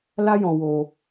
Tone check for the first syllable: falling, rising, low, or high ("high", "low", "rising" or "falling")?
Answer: high